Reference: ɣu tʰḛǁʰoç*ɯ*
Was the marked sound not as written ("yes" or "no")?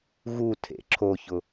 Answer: yes